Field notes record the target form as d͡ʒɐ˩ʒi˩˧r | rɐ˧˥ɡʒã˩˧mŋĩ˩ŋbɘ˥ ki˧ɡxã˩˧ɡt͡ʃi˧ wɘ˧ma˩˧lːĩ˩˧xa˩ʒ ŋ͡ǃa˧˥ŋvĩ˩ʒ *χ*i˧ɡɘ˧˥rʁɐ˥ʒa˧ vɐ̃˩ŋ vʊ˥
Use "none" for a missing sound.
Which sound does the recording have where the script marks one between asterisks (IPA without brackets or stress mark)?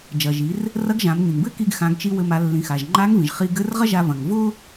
χ